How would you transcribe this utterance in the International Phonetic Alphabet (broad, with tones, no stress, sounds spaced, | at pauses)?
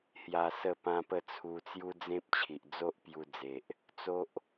h j a˧ s ə˥˧ p ã˦ p ə˥˧ t͡sʰ u˧ t͡s j u˦ d͡z ẽ˦ p̚ t͡ɕʰ i˨ ʔ d͡z o˦ ʔ p j u˧ d͡z e˨ ʔ | t͡s o˦ ʔ